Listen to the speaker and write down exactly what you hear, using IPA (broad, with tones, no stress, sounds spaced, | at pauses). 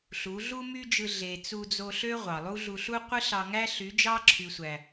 ɬ u˨˦ ɮ u˦ m y˦ d͡ʒ ɯ˧ ɮ e˨ t͡s u˧ d͡z o˧ ɬ ø˦ ʁʷ ɑ˨ lˠ u˦ ɮ u˧ ɬ u˦ qʷ ɯ˦ ɬ ɑ˧ ŋ æ˦ ɬ y˨˦ d͡ʒ ɑ˦ ǁʰ y˨ sʷ æ˨